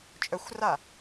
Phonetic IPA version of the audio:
t͡ʃʼœxʷra

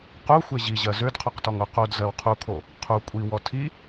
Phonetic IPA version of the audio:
qu xʷeʑiʑɜ zødqʰoqtɔŋo qodzɜw qʰukʰo | qʰu kʷʼiwɔ tʰi

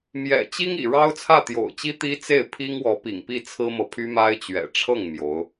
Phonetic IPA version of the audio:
mjɛ̰˨˩t͡ɕi˥ŋḭ˨˩ ɻɑ˥ʊ̯t͡sʰä˥˩t̪jo̰˨˩ʊ̯t͡ɕi˥ t̪i˥t͡se˥˩ɪ̯ pʰi˥ŋwɔ˧˥pḭ˨˩ŋpi˥˩ t͡sʰɹ̩˥mɤ˨pʰy˥ ma˥ɪ̯t͡ɕɥɛ̰˨˩ ʈ͡ʂʰɤ˥˩ŋ mjo˧˥ʊ̯

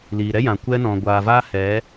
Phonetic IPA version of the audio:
liː˨ɾɛ˦jã˨ kʷɛ˦nɔ̃˨ ɡʷaː˨vaː˦hɛ˨˦

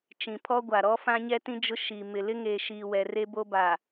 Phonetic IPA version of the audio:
t͡ʃĩ˨pʰɔ˦ɡʷa˨ɾɔ˦ fã˦ɲɛ˦tĩ˦ d͡ʒʊ˦ ʃiː˨mɪ˨ lɪ˦ŋeː˨ʃiː˨ wɛ˨re˦bo˦baː˨

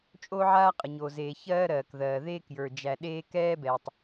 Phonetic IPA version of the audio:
t͡ʃʼo˦ ʕaː˦qʼə˨ɲo˨zeː˨ çɜː˦ɾɜː˨kðɜː˨ ðeː˦k jə˞˨d͡ʒæ˨ ɗeː˦ kɛː˦bɛ˨tˤ

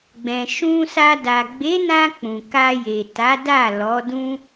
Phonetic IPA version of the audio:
ɡ͡bɛ̃˨ʃũ˧sa˧ da˨ɡ͡be˨˦nã˧ k͡pũ˨ka˧je˨ ta˨˦da˦˨ lɔ˨˦dũ˦

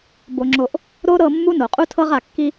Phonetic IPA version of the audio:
bo˨ŋ͡ǁo˨ʔ | ɾo˦ɾɤ˦˨ mːu˦no˨qʼu˦tʰɤ˦ʁ a˨kːi˦

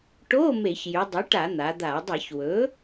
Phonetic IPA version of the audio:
ʈo˧˥˧ me˧˩˧çjy˩˧dˤy˩˥ʈa˧˩˧ n̪a˩˧d̪a˧˩˧ dˤe˧˩˧çwɵ˩˥

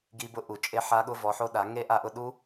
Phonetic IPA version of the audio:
ɡi˦˥bʊ˦˥ ʔu˨˩˦ t͡ʃʼe˦˥ħa˦˥ ɠʊ˦˥vɔ˨˥ħo˦˥ ɗa˨˩˦ ŋe˦˥ʔa˦˨ʔʊ˦˨ ɗu˦˥

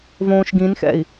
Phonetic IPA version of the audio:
võːʃɡĩnxɛ̰i̯

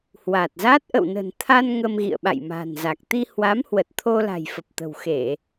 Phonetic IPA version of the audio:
hwa˨˩t̚za˦˥t̚ ʔə̰˧˨wnə̤˨˩nt̪ʰa˧n ŋə˧mɣḭ˧˨ə̯ ɓa̰˧˨jma̤ː˨˩nza˨˩k̚ t̪i˧ hwa˨˦mhwə˨˩t̚ t̪ʰo˧la̤˨˩jfə˨˩p̚ t̪ə̤˨˩wxe˧˩˨

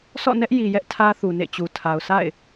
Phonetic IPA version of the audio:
sɔ̰˦˨nɛ˦ʔ ji˨jɛ˦ʔ tʰä˦θu˨nḛ˦˨t͡ɕu˨ tʰa˨ʊ̯sa̰˦˨ɪ̯

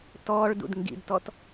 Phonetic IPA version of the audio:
tɔːɭdṵd ŋɡḭdtɔt

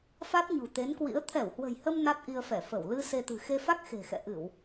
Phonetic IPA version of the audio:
fa˦˥t̚ɲṳ˨˩t̪e˨˦nkwḭ˧˥ə̯ t̪ʰɛ˧˩whwə̤˨˩jhə˧m na˦˥t̚ʔi˧ə̯fɛ˧˩fə˧˩w lɨ˧ se˧t̪ɨ̤˨˩ xe˧fa˦˥k̚xe̤˨˩xɛ̰˧˨ ʔɨ˧˩˨w

